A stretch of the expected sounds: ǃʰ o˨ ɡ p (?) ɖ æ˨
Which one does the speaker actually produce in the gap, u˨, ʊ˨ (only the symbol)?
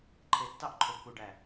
u˨